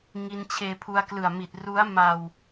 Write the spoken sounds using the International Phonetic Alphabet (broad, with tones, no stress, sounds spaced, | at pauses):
ŋ i˧ n t͡ɕʰ eː˧ pʰ u˧ a̯ k l ɯ˨˩ a̯ m i˨˩ t̚ r u˦˥ a̯ m a˧ w